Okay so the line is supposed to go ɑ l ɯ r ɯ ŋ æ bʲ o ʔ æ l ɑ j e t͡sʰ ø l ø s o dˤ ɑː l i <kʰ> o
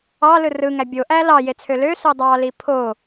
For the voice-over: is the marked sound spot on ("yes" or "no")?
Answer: no